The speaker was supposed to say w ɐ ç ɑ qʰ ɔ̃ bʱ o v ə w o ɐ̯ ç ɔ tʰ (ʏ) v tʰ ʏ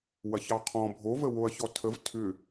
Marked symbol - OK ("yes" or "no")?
no